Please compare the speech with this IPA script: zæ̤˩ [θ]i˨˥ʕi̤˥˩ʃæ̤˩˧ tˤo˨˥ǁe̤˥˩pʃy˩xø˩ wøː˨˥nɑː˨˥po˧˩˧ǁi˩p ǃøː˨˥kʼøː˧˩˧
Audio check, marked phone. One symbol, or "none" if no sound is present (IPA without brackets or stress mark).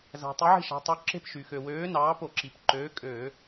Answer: tˤ